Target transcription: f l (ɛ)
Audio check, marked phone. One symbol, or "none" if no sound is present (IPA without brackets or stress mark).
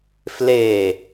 e